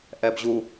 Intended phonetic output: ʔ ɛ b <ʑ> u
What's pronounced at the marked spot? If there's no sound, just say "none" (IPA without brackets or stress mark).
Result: ʑ